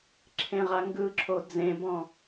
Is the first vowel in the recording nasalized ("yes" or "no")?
yes